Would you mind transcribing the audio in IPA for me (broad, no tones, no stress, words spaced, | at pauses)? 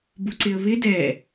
buǀɪə̯βɪ dɛ